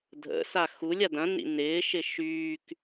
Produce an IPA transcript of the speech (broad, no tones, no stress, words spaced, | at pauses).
dʱə̰sa xulʲ adɐ̃nḭ nɪːʃɪ ʃyːk